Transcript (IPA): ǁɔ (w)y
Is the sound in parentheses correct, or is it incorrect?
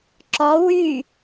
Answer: correct